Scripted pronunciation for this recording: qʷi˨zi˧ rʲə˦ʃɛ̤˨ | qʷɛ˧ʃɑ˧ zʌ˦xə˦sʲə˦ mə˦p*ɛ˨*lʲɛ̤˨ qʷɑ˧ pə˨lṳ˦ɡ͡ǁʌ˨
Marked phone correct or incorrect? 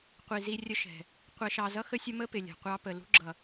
incorrect